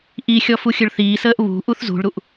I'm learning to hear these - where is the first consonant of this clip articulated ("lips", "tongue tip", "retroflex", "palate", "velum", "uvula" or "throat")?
throat